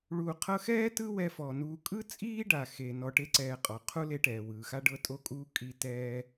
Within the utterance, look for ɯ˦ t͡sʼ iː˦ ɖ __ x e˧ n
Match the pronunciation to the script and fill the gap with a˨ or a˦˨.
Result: a˨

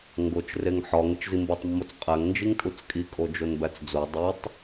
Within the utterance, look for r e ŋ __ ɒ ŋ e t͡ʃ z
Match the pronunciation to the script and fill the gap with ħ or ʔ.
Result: ħ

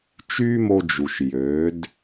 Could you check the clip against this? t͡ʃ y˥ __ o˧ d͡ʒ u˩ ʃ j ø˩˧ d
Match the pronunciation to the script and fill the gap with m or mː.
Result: m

